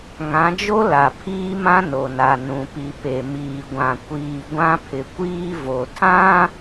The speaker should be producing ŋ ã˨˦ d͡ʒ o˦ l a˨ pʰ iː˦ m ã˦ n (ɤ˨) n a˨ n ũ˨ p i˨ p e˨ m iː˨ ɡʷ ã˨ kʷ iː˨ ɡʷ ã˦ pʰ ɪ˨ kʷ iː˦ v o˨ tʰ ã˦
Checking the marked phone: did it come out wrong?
yes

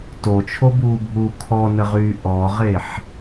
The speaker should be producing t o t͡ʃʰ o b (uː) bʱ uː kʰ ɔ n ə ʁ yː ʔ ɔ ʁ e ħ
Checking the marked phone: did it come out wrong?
no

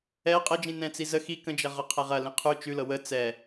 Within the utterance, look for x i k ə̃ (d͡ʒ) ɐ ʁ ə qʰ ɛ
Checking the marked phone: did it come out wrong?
no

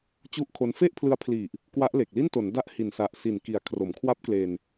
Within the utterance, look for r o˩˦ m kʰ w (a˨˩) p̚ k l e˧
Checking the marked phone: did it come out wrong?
yes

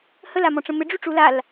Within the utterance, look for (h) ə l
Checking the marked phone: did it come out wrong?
no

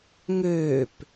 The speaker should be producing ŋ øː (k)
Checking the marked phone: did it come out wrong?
yes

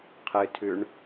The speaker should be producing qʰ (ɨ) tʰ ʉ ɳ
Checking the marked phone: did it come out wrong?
no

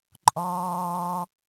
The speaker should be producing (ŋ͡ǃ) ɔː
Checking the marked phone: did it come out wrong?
yes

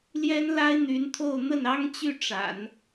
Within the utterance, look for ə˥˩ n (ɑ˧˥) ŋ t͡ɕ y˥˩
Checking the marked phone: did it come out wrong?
yes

